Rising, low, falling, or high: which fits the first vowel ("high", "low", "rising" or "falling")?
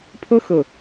high